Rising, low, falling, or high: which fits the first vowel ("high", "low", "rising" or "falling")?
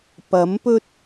rising